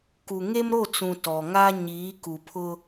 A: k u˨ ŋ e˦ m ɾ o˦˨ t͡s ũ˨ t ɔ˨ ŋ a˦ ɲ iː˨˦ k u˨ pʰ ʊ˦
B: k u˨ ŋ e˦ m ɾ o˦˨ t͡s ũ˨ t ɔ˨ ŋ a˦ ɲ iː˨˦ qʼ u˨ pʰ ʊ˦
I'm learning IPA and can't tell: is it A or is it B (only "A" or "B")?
A